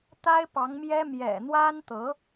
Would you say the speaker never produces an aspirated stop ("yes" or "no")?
yes